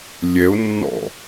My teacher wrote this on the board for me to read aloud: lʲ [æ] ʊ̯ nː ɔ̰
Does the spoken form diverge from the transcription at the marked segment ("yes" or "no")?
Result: yes